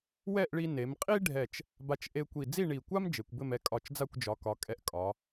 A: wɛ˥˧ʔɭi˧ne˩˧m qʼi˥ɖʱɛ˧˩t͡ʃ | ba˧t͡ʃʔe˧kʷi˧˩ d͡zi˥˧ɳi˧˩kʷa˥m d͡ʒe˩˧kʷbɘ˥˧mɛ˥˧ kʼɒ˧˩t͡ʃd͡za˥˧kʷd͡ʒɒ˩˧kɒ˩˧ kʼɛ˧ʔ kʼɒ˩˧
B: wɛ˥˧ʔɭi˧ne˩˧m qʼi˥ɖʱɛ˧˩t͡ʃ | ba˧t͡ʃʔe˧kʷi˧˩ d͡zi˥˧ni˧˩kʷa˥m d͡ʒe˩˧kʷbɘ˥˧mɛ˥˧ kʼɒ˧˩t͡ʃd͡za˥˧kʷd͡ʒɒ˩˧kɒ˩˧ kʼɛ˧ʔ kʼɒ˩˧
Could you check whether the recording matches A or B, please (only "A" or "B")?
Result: A